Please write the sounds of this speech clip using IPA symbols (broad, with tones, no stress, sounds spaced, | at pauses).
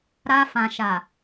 ɾ a˧ f ã˨ ʃ a˨